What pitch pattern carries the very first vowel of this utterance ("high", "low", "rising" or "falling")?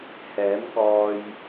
rising